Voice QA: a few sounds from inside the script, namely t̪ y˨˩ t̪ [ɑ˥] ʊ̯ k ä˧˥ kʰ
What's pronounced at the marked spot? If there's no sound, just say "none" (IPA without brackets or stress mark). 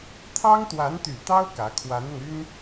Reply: ɑ˥